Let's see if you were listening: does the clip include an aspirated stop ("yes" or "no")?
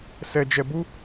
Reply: no